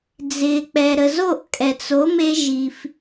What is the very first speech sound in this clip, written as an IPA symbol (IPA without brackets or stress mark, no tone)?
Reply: d͡z